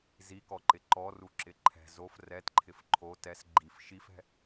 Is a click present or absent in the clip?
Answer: present